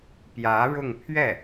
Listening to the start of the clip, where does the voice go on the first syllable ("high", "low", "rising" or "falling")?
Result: rising